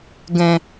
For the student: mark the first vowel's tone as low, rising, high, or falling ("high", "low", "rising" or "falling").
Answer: low